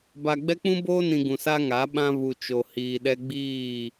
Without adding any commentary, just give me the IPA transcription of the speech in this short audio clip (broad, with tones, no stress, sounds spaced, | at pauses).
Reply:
b a˨ ɡ͡b ɛ˦ k͡p ũ˦ b oː˦ n ĩ˨ ɡ ũ˨ s a˦ ŋ a˨˦ ɓ ã˦ β u˨ t͡ʃ o˨ h iː˨ ɗ ɛ˦ ɡ͡b iː˦˨